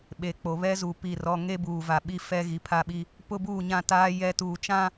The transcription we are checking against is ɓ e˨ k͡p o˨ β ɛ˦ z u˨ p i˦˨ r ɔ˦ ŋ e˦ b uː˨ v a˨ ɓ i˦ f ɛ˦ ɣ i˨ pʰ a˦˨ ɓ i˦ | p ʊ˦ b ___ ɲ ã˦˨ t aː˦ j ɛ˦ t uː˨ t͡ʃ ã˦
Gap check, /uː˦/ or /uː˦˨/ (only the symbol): uː˦˨